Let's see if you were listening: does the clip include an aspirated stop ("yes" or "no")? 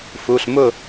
no